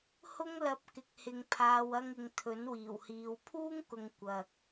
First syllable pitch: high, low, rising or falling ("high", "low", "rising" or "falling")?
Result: high